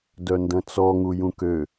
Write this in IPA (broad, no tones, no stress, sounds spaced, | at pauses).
d œ n d ɐ̃ t͡s ɔ ŋ u j ũ k ø